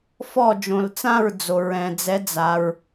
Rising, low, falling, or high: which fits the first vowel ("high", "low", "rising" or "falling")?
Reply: falling